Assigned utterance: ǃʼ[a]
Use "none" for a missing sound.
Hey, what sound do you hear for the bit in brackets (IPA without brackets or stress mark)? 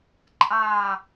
aː